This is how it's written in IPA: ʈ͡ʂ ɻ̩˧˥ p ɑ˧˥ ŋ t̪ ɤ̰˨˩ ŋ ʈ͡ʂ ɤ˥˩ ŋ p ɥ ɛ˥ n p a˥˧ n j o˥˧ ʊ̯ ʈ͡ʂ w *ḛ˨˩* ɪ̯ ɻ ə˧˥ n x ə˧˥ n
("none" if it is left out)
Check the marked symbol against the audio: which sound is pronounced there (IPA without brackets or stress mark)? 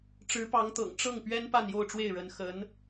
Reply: e˥˩